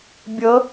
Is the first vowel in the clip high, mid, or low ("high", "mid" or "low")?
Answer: mid